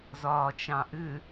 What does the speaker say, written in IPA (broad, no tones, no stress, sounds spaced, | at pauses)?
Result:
z ɒː t͡ʃ ɑ̃ ʔ ʏ